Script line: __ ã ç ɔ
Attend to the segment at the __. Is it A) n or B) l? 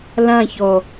B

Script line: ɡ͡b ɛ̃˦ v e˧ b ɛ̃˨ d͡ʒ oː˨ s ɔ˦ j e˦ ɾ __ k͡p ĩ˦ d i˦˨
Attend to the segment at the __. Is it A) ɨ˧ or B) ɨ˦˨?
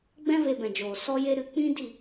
A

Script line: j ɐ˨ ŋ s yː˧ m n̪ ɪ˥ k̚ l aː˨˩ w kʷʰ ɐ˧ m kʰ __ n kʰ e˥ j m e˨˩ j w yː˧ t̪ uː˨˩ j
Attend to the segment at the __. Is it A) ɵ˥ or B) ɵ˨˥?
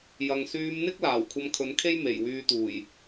B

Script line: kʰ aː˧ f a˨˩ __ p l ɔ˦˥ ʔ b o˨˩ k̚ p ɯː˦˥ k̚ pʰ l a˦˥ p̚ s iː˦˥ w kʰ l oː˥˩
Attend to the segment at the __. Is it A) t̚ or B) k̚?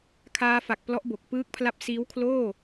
B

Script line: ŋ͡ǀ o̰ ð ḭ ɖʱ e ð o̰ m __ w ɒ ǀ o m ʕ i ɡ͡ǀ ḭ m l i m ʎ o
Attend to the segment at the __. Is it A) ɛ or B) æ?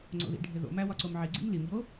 B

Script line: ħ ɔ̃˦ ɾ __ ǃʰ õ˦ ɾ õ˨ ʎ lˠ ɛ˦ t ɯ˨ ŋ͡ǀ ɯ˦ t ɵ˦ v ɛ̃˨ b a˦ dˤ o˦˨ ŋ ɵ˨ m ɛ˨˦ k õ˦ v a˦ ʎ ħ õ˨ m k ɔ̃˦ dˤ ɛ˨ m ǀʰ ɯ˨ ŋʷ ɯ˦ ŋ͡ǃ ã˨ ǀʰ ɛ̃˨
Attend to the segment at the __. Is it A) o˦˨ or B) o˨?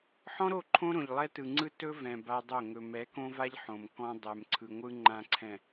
A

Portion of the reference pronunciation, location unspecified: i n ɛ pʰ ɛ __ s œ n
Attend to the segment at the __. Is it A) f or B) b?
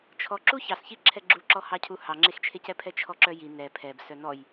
B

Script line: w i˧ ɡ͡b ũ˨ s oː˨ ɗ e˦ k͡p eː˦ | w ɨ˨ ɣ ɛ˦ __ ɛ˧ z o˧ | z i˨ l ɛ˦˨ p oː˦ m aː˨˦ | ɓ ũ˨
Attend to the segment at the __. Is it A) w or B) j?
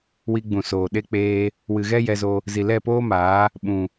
B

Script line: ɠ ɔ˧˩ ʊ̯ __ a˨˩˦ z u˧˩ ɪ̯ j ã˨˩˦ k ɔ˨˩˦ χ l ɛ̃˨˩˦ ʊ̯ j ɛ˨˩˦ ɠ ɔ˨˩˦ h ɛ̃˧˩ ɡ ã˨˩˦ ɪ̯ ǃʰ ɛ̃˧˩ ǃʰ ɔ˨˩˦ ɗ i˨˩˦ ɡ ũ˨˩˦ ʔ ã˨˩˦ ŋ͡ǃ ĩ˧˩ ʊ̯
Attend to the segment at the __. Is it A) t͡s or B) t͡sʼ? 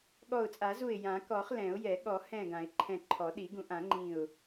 B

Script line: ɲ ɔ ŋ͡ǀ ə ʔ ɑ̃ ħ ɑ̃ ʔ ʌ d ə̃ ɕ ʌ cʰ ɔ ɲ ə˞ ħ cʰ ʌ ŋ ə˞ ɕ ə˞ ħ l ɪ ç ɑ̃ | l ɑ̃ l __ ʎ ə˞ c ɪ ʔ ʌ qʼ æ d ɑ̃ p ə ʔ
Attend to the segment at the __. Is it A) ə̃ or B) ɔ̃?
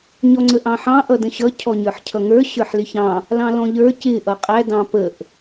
B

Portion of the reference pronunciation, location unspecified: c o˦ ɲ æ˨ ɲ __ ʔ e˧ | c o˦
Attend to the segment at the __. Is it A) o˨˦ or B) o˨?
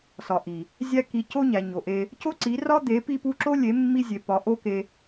B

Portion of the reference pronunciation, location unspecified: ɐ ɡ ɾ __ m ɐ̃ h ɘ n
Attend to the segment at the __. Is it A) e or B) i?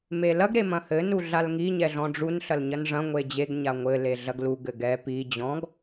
A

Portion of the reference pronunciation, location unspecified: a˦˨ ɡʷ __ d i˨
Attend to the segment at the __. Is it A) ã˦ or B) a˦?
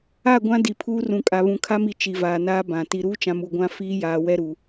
A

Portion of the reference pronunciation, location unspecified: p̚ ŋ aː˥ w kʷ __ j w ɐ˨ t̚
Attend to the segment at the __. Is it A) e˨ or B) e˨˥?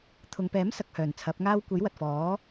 B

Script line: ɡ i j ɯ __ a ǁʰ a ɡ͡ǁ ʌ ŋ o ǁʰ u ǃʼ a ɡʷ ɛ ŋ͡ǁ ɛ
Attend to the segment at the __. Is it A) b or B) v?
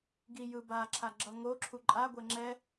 A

